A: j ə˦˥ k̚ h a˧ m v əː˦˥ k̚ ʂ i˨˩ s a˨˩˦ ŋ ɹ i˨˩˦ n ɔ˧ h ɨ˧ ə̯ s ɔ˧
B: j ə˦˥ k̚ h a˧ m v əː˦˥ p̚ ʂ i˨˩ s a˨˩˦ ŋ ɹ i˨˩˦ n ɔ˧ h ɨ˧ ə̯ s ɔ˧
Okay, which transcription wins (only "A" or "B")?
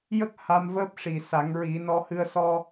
B